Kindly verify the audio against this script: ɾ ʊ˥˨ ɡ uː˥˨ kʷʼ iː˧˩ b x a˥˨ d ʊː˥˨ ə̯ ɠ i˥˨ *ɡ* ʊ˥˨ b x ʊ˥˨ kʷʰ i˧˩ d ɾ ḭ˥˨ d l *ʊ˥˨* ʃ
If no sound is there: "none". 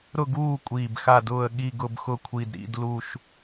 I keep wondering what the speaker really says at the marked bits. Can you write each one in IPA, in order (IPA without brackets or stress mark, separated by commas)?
ɡ, u˥˨